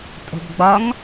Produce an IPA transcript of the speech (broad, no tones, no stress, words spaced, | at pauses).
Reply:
tʼo̤bɡ͡bɒŋ